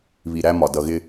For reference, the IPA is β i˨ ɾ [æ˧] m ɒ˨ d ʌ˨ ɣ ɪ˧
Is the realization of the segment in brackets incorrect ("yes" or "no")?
no